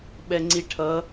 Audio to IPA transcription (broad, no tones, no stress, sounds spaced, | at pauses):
ɓ ɛ ŋ͡ǀ i ʈʰ ʌ